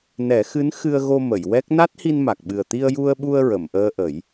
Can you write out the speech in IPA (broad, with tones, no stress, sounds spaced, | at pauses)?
n ɛ˨˩˦ x ɨ˧˥ n x ɨ˧ ə̯ ɣ o˧ m ə˨˩˨ j w ɛ˦˥ k̚ n a˦˥ t̚ h i˧ n m a˨˩ k̚ ɓ ɨ˨˩ ə̯ t̪ i˧ ə̯ j u˧ ə̯ ɓ u˧ ə̯ ɹ ə˨˩˨ m ʔ əː˧ ʔ ə˨˩˦ j